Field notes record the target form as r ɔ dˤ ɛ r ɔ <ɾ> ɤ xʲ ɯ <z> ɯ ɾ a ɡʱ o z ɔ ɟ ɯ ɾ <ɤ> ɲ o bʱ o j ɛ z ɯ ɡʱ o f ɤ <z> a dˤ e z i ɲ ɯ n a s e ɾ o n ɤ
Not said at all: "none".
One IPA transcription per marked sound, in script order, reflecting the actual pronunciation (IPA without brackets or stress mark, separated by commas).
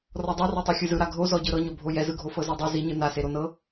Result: tˤ, z, ɤ, z